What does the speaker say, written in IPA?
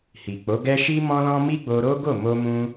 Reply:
h i˨ k͡p o˨˦ ɡ ɛ˦ ʃ i˦ m ɔ̃˦ l ɔ̃˦ m i˦ ɡ͡b o˧ ɾ o˦ ɡ o˦˨ m o˧ m ũ˧

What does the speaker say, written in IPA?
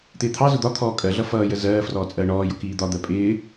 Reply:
t̪ ɪː t̪ʰ ɑ z ʊ d̪ ɒ t̪ʰ ɔː kʼ ɜ ɮ ʌ f ʌː j ə z ɜː f r ɔː t͡sʼ ɜː ɳ ɔː j ʊ k iː d̪ ɒ d̪ ɜ pʼ ɪː

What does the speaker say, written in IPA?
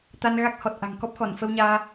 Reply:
t̪ a˧ n ɣ a˦˥ k̚ h ɔ˨˩ t̚ ʔ a̤˨˩ ŋ k ɔ˦˥ p̚ x ɔ˧˩ n f ə˧ w ɲ aː˧

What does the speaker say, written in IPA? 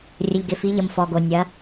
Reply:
rʲ ə˩ ʎ ɡ ɪ˩ f i˩˧ ʎ ə˩ m f ɔ˩ ɡ o˩ nʲ ɐ˩˧

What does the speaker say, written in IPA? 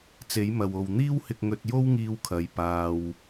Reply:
t͡s e˨˥ j m ɐ˨ w o˨ w n̪ iː˥ w h ɪ˧ k̚ ŋ ɵ˧ t̚ j o˥ w ŋ iː˧ w kʰ ɐ˨˧ j p aː˨ w

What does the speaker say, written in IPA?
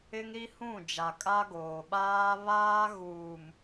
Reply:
ɪ˦ ŋ ɾ i˦ h ũ˦˨ d͡ʒ a˨ kʼ a˦ ɡ oː˨ ɓ aː˦ β aː˦ ɣ uː˨ m

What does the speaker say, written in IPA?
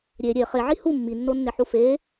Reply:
ɾʲ e ɾʲ e χ e ʕ i h u mː i nː o nː e ħ u f e

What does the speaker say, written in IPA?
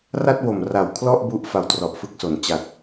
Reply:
r a˥˩ t̚ w o˨˩ m r a˨˩ w kʰ l ɔ˥˩ ʔ b u˦˥ ʔ f a˧ w t r ɔ˨˩ ʔ f ɯ˦˥ k̚ s o˩˦ n t͡ɕ a˨˩ t̚

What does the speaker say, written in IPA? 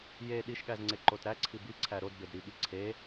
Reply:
j e ɗ i ʃ ɠ æ z ŋ͡ǀ e ǃ o t ɾ æ ǀʰ i b i ǀʰ æ ɾ o d b e d ɾ i ɠ i ǀʰ e

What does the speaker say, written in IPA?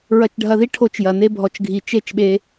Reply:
ɹ ɐ˧ t͡ʃ ɖʱ ɐ˧ ð i˦ ʈʰ o˧ t͡ʃ j ɐ˨ n e˦ bʱ ɔ˧ t͡ʃ ɡʱ i˧ t͡ʃ e˦˨ t͡ʃ ɓ e˧

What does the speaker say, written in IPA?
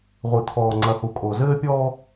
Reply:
ʁʷ ɨ˨ t̪ʰ ɔː˨ ŋ͡ǀ ɐ˨ h u˨ kʼ o˨ z ɘː˦ pʲ ɔː˦

